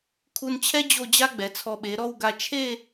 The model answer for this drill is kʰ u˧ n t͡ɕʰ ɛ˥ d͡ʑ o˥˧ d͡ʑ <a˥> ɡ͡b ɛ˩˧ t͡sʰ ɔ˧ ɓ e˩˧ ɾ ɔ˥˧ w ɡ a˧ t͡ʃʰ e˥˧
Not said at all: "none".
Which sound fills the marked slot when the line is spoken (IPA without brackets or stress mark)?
a˥